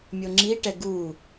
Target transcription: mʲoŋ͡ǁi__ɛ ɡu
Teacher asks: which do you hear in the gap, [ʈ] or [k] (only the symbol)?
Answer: ʈ